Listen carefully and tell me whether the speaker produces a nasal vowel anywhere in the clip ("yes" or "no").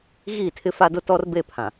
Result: yes